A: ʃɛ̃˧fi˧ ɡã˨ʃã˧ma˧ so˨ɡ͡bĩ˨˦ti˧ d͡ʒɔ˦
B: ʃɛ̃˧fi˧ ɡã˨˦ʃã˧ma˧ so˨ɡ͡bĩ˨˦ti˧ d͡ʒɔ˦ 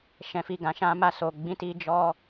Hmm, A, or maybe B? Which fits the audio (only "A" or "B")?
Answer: A